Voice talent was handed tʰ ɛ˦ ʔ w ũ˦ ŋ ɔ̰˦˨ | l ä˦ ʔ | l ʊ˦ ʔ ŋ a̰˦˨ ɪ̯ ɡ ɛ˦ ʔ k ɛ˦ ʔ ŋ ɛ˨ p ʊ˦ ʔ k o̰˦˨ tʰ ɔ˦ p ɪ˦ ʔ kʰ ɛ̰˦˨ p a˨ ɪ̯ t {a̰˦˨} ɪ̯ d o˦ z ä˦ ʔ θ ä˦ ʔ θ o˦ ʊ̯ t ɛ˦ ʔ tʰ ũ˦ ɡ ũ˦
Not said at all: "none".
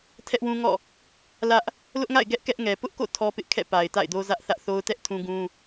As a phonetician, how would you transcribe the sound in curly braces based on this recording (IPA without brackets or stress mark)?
a̰˦˨